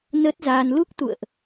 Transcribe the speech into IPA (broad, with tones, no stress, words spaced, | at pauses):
nəː˦˥t̚zaː˧n lu˦˥k̚t̪ṵ˧˨ə̯ʔ